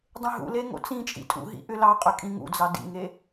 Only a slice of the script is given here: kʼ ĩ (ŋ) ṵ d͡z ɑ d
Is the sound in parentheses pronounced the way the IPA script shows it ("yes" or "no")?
yes